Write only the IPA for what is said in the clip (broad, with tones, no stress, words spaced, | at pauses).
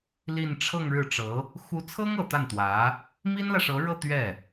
li˥˧n ʈ͡ʂʰɤ˥˧ŋɻɻ̩˥˩ʈ͡ʂɤ˧˥ | xu˧˥t͡sʰɤ˥ŋɤ˨˩ t̪a˥˩nt̪wä˧˥ | mi˥nlä˨ʂɤ˧˥ɻɤ˥˧ t̪ɥɛ˥˩